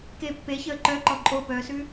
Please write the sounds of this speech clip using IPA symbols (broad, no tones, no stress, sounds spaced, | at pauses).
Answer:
k e pː e ç əː ǃ œ ǃ ɔ ǃʼ o p œː s ʉ